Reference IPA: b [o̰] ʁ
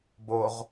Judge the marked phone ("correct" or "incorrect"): incorrect